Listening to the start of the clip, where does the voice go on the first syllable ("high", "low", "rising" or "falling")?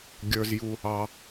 high